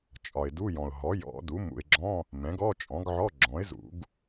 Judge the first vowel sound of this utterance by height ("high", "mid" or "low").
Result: low